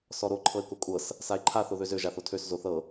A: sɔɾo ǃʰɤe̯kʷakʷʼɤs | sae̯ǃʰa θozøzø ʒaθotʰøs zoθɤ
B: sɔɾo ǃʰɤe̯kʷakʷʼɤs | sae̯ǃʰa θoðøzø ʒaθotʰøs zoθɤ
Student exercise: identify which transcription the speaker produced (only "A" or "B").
B